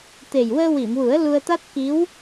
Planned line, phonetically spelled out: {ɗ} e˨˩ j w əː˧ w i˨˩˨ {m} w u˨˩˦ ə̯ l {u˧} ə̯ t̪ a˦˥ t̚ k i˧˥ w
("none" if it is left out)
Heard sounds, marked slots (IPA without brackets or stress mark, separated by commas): t̪, m, u˧